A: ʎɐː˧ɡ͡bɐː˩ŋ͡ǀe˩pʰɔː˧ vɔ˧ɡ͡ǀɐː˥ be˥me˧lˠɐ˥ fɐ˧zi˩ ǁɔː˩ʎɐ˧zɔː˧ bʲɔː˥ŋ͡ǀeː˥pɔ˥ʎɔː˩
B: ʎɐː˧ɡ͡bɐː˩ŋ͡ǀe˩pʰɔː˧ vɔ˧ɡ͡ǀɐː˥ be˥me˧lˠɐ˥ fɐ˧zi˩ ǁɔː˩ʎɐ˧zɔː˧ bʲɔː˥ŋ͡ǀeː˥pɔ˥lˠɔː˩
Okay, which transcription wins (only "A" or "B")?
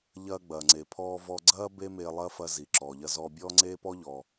A